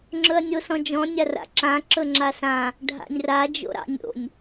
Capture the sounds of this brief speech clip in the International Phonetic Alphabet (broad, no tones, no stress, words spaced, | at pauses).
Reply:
ŋ͡ǁɵɐ̯nʲosɔ̃d͡ʒɔ̃ nʲara̰ǁã ǁɵŋ͡ǁasã | ɖʱa̰nʲra d͡ʒo̰ɾɑ̰nʲo̰nʲ